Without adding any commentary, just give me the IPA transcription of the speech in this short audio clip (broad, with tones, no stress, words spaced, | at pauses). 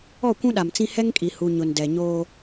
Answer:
ɔ˦˨kʷũ˦ɗa˨mt͡sĩ˦ hɛ˦ŋkʼi˨ hu˨ ɲʊ˨ndɛ˨ɲoː˦